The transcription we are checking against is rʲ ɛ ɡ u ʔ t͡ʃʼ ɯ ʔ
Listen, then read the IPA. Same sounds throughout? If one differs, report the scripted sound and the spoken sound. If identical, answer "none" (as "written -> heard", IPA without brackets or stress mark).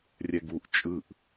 none